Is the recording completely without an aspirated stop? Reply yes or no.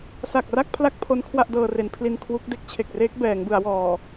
no